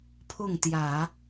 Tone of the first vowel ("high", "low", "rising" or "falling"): falling